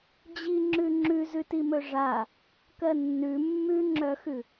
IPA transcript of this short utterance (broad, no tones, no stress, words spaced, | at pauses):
d͡ʑiŋ͡ǁʉ ŋ͡ǁʉzʉtimɵ ʐa | kɜnːʉ mːʉŋ͡ǁœxʉ